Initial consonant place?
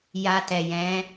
palatal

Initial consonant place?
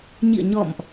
palatal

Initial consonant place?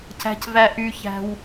palatal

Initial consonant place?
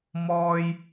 labial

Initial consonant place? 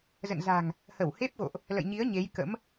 alveolar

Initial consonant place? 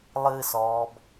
alveolar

